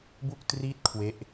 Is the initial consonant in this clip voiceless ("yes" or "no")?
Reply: no